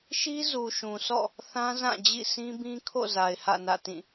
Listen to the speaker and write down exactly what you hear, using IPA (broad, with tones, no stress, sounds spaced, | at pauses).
ʃ i˦ z u˨ ʃ ũ˨ s ɔ̰˦˨ | θ ã˦ z ã˦˨ d͡ʑ ḭ˦˨ s ĩ˦ b ĩ˦ kʰ o̰˦˨ z a˨ ɪ̯ h ä̰˦˨ n ä̰˦˨ t ĩ˦˨